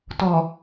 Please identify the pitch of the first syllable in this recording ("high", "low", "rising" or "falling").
low